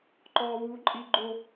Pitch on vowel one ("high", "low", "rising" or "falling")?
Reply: low